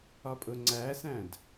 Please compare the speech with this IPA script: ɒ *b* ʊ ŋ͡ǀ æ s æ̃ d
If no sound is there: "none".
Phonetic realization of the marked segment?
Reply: pʼ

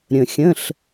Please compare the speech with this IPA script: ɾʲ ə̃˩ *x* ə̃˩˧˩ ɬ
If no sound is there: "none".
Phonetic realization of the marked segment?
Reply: xʲ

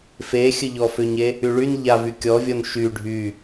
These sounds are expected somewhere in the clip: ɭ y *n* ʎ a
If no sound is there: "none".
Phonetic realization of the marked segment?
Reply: n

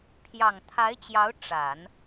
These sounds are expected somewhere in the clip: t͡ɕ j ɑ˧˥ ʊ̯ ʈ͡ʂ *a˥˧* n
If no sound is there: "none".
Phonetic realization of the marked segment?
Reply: a˨˩˦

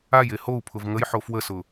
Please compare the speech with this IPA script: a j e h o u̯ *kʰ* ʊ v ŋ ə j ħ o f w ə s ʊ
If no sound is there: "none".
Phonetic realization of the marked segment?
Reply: pʰ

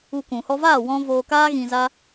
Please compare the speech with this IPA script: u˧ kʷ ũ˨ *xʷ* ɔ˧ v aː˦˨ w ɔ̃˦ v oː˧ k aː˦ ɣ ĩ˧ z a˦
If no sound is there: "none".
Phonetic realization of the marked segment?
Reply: h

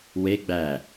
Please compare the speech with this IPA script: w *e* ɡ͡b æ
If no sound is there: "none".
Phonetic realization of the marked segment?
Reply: e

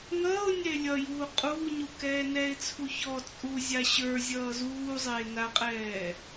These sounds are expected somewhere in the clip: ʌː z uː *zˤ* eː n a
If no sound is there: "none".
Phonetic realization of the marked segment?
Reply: zˤ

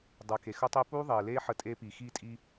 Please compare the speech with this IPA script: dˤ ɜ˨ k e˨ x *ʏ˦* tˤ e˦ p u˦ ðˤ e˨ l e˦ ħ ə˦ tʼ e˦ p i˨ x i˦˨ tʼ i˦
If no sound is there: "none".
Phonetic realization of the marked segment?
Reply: ə˦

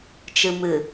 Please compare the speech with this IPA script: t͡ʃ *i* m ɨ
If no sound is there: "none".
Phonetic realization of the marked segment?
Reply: ɨ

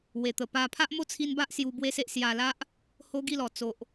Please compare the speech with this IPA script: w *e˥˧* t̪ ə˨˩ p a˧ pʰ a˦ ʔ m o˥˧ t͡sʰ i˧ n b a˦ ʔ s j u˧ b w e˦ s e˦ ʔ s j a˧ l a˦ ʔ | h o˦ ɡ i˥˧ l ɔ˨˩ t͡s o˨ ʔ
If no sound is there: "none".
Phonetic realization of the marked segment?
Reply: e˨˩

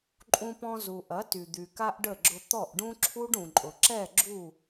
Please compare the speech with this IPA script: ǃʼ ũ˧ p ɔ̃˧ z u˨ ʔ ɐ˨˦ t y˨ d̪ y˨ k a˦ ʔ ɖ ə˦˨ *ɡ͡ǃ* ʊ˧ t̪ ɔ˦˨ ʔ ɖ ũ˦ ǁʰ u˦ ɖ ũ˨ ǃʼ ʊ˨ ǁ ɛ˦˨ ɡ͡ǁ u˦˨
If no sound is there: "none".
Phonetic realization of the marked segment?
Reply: ɡ͡ǁ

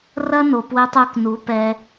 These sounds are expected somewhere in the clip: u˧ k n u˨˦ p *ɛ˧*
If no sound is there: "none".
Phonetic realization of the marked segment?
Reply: ɛ˧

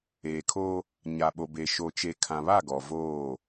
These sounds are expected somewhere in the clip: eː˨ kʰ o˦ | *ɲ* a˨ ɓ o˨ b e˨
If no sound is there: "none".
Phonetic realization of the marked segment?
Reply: ɲ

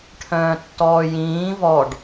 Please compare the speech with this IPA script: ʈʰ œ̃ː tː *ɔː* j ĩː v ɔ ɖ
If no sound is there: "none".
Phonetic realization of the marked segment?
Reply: ɔː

